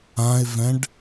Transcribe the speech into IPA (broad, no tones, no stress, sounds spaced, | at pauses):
ã ɪ̯ v ɛ̃ ɖ